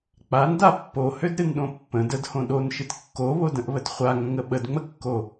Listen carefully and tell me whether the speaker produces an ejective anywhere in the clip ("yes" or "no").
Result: no